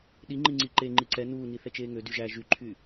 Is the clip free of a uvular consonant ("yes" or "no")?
yes